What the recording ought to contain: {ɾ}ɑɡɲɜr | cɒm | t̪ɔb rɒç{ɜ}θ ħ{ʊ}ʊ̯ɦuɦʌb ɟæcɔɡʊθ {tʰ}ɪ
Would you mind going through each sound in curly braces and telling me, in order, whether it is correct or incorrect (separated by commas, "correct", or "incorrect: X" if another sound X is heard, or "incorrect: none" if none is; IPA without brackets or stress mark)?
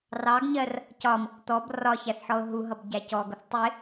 incorrect: r, incorrect: æ, incorrect: ɔ, incorrect: tˤ